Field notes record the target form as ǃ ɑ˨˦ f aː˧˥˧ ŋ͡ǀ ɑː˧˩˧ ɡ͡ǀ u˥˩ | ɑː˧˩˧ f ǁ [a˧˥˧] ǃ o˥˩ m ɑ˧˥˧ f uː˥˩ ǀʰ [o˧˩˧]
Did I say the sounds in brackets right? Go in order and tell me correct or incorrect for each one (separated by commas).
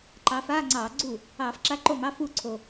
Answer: correct, incorrect